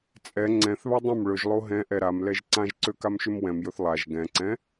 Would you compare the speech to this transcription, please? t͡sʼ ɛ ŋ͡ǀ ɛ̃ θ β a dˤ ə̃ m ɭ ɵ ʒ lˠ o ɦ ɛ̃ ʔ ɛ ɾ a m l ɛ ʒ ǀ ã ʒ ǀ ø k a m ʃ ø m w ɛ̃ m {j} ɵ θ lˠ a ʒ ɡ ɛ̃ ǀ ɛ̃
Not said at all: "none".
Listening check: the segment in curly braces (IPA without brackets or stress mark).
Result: j